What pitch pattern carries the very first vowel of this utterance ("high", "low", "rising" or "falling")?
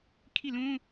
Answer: falling